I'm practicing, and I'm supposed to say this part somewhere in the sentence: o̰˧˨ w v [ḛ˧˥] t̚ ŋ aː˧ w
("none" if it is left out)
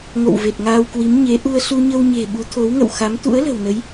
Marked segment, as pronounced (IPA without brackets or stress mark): e˨˩